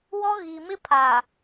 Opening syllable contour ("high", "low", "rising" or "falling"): high